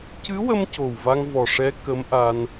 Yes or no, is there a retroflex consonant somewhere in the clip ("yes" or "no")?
yes